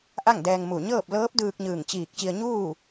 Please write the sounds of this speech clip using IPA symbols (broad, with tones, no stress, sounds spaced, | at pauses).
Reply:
ʔ a˥˨ ŋ d ɛː˧ ŋ m u˧˩ ɲ ɤː˥˨ p̚ l ɤː˧˥ p̚ d ɯː˧ k̚ ɲ ɯː˧˩ ŋ t͡ɕ iː˧˩ k̚ t͡ɕ i˧ ə̯ ɲ uː˥˨